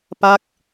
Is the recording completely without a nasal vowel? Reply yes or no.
yes